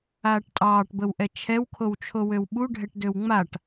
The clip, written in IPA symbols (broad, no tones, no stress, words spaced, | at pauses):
aːʈtʼɑːʈbəwʔɛ t͡ʃʰɛwkʰowt͡ʃʰowøw ɓuɖʱɛʈdøw ŋ͡maʈ